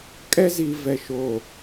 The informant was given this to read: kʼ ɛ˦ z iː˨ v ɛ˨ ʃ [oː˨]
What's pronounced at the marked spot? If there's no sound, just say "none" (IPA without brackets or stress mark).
oː˨